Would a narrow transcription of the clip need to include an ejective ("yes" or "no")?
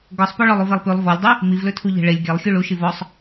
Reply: no